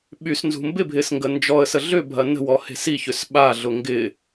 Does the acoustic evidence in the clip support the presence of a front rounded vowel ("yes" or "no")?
yes